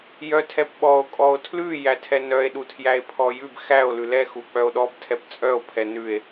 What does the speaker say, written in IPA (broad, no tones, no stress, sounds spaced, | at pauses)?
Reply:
j œ tʰ ɛ p ɓ ɔ o̯ kʼ ɔ o̯ tʰ l ʉ j æ tʰ ɛ n œ e̯ ɗ u tʰ j æ e̯ pʰ ɔ j ʉ b x æ o̯ l ʉ l ɛ x u k͡p œ o̯ ɗ ɔ b tʰ ɛ p t͡sʼ œ o̯ pʰ ɛ n ʉ e̯